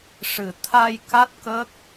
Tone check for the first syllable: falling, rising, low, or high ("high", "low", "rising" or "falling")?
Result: low